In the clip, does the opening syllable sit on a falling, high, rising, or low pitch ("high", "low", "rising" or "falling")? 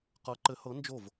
rising